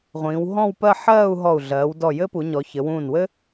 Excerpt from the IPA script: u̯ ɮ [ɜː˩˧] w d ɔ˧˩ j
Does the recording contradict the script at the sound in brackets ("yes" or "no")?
no